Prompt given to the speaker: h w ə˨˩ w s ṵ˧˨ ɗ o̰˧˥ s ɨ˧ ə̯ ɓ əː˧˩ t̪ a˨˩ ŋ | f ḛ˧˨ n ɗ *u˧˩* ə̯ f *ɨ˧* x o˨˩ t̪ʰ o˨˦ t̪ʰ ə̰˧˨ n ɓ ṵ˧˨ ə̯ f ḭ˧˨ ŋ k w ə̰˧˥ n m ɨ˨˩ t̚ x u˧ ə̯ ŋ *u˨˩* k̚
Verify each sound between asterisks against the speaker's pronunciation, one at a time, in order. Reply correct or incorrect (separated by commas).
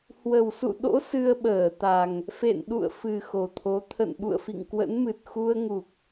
incorrect, incorrect, correct